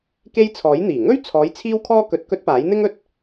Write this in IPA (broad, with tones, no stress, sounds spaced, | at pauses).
k e˥ j t͡sʰ ɔː˨˥ j n̪ iː˨˩ ŋ ɵ˥ ɥ t͡sʰ ɔː˨˧ j t͡sʰ iː˥ w kʰ ɔː˥ k ɵ˧ t̚ k ɵ˥ t̚ p aː˨˥ j n̪ ɪ˥ ŋ ɵ˧ t̚